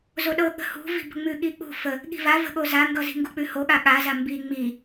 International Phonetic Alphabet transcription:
z o ɗ ɤ ɠ ə̤ h ṳ v i̤ b ə̤ ŋ͡m ʉ ɠ i k͡p ṳ f ə | ɠ i̤ v a v ə̤ ɠ o z a ŋ ɡ ʌ z i̤ ŋ ɡ u k͡p ʉ h o ɠ a ɠ a z a m b i ŋ͡m i

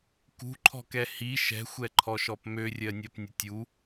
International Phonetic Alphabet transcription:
k ṳ ǃʰ ɔ̤ k ɛ h i ʃ ɛ̤ xʷ ɛ ǃʰ ɔ ʃ ɔ p m ø rʲ ɜ nʲ ɜ p nʲ ə tʲ u

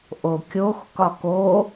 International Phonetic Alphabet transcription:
ʔ o kʲ o x k ɒ k o

